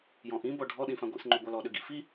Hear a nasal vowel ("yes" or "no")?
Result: yes